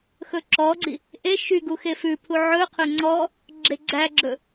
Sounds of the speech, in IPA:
x ɵ ǁ ɔ ɡ͡ǀ i | ʔ e ʃ y ɡ u x e f ʉ pʰ u ʕ ɵ qʰ ɵ ŋ͡ǀ ɔ | ɡ͡ǁ e ɡ͡ǀ æ ɡ͡ǁ ɵ

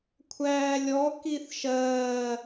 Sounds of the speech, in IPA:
kʷʰ æː lʲ ɔ k i θ ʃ ɜː

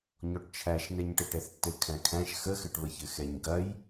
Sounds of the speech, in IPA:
ɲ ɔ ʈ t͡ʃʰ æ ʃ n ɛ ɲ ʈ ɘ ʈ ɛ θ tː ɘ kʰ æ̃ kʰ æ̃ ʃ x ə x ɘ ʈ β ə ç ɘ x ɛ ɲ ɡ ɐ j

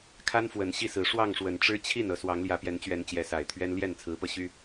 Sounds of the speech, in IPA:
kʰ a˦ n f w ə˨˩ n ɕ i˥˨ s ɹ̩˨˦ ʂ w ɑ˥˨ ŋ ʂ w ə˨˩ n ʈ͡ʂ ɻ̩˦ t͡ɕʰ i˥˨ n ɤ˨˦ s w ɑ˨˦ ŋ l j ä˨˦ p j ɛ˨˦ n t͡ɕ ɥ ɛ˨˦ n t͡ɕ j ɛ˨˦ s a˨˩ ɪ̯ t̪ʰ ɥ ɛ˦ n l j ɛ˥˨ n t͡sʰ ɹ̩˨˦ p ɤ˧ ɕ y˦

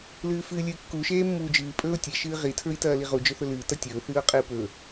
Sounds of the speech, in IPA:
l ɨː f ɨː lʲ ɨː kː u ʃ eː mː uː d͡ʒ ɨː pʼ ɵː ʊ̯ tʲ e ʃ ɨː ʁ i tʰ ɹ i t ɐː l i ʁ u d͡ʒ ɵ θ ɵ l ɨː t ɐ tʲ ɵː θ ɨː ʊ̯ qʼ ɨː p ɵ

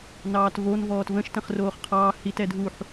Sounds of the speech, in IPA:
n ɑː t v o n v ɔː t v ə̃ ʃ t ə̃ χ r oː χ qʰ ɑː h i t ɛ dʱ u ħ

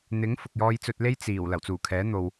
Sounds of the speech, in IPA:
n̪ ɪ˨˥ ŋ f ʊ˨ k̚ j ɔː˧ j t͡s ɵ˧ t̚ l e˥ j t͡s iː˨˩ w l ɐ˨˩ w t͡s uː˨˩ kʰ ɛː˨˥ n̪ o˨ w

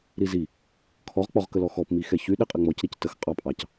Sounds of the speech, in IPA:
ɾ i z i | kʰ ɔ ʁ k͡p ɔ ʁ k ə l ɔ x ɔ p m i x ɛ ç y ɗ i qʼ ɪ ŋ͡m ɔ c ɾ i c t ə x qʼ ɑ pʼ ɑ c

